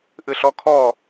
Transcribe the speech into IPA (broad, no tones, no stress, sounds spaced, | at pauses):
ʔ ɨ ɬ ɔ kʰ ɔ